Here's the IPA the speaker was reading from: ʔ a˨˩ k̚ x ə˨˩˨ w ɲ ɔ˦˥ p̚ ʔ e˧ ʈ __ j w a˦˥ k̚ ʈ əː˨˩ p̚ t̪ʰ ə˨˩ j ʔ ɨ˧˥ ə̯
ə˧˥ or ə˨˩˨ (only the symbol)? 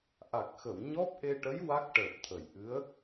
ə˧˥